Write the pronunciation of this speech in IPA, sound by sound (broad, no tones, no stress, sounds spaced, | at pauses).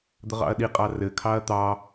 d̪ ə ʁ ɑ̰ ɐ̯ ɗ i qʼ ɑ r ɘ kʰ ɑ ɐ̯ t̪ ɑ